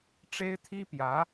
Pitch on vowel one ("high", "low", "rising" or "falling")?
high